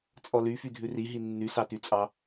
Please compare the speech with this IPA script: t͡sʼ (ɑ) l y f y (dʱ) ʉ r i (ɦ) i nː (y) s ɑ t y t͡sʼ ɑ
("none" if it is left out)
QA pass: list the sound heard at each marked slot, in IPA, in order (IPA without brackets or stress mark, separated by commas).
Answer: ɔ, dʱ, ɦ, y